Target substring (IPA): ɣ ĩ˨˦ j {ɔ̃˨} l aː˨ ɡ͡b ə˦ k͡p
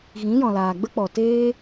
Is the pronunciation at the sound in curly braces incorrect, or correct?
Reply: correct